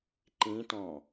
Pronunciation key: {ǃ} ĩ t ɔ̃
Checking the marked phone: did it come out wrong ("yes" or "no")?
no